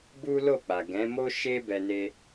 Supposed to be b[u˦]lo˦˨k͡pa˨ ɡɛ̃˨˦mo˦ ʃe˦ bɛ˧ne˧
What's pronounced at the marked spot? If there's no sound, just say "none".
u˦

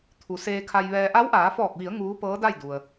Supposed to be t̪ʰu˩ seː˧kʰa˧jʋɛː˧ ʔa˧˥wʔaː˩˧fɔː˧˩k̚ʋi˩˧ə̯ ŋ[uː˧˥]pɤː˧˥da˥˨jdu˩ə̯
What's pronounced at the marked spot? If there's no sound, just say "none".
uː˧˥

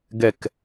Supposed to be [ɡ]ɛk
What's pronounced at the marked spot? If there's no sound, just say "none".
ɡ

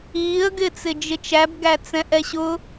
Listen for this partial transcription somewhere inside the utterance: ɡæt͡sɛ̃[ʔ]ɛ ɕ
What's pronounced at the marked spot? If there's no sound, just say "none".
ʔ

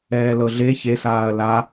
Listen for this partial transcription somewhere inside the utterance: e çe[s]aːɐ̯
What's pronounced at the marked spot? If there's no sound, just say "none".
s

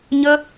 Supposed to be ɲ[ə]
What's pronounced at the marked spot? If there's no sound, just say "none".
ə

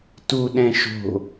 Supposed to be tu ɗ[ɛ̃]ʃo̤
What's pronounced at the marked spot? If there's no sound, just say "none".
ɛ̃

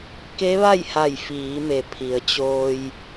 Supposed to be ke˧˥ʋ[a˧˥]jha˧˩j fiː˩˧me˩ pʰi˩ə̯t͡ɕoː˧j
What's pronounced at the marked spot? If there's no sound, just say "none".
a˥˨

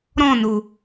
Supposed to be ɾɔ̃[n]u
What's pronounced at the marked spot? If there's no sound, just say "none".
n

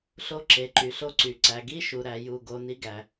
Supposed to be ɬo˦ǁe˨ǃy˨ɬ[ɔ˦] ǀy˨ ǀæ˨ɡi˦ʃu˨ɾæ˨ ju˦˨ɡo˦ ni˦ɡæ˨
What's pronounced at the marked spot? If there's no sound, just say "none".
o˦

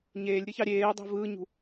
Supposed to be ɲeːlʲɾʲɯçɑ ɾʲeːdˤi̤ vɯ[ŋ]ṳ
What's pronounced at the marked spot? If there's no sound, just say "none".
ɲ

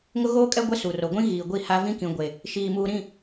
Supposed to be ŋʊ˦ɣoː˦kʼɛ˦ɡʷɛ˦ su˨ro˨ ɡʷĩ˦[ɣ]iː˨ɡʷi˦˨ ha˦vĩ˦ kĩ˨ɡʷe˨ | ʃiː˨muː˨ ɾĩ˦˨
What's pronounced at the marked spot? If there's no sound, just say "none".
ɣ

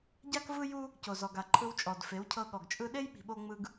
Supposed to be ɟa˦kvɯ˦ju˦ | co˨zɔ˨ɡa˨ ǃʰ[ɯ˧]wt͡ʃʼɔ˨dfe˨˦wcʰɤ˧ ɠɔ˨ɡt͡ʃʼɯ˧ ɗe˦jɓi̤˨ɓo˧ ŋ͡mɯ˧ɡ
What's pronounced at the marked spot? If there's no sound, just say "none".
ɯ˧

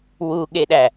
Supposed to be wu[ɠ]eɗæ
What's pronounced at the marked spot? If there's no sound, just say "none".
ɠ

